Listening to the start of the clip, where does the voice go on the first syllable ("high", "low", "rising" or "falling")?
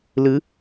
rising